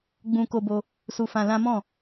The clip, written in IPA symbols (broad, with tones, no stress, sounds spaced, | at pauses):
ɡ͡b ũ˧ k o˧ b o˧ | s u˧ f ã˧ l ã˦ m ɔ̃˦˨